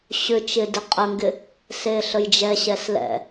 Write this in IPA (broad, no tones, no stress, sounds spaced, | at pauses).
ɕ ʏ t͡ʃ ɪ d ɪ qʼ ə ŋ ɡ ɪ | s e ɬ ə j d͡ʒ ɛ ɕ ɛ s l ɛ̰